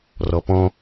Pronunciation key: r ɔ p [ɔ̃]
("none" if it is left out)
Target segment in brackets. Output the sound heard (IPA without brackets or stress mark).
ɔ̃